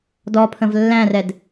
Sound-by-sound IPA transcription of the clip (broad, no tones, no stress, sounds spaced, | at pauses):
d ɔ pʰ ə̃ v lː æ̃ r ɛ d